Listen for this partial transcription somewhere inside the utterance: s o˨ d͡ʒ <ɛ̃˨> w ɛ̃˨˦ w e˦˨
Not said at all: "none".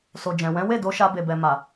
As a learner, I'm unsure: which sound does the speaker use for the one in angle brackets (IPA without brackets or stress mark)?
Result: ɛ̃˨